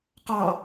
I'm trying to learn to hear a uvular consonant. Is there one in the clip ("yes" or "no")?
yes